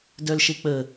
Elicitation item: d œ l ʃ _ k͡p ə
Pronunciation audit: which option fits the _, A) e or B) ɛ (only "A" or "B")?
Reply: A